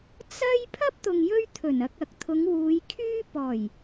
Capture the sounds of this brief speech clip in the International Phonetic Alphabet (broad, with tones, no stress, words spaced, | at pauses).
t͡sɐ˥j pʰɐ˥p̚t̪ʊ˨ŋ jɵ˥ɥt̪ʰɵ˨˩nɐ˧k̚ɐ˨˥k̚ t̪ʰʊ˨˧ŋwuː˨˧jkʰyː˥ pɔː˨˩j